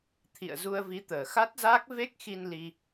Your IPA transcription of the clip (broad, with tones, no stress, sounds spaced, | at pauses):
t̪ʰ ḭ˧˨ ə̯ z u˧ ə̯ v i˨˦ t̪ əː˨˩ x a˦˥ t̚ z aː˦˥ k̚ v e˦˥ k̚ x i˧ n l i˧